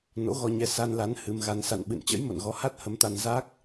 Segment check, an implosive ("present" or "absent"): present